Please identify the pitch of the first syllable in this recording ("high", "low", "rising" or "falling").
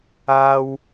high